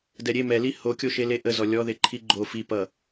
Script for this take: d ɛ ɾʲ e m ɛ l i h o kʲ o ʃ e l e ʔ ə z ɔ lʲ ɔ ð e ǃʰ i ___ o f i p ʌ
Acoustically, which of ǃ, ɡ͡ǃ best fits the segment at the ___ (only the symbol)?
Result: ɡ͡ǃ